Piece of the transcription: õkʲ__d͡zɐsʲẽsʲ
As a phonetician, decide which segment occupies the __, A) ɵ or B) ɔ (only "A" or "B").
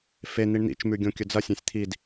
A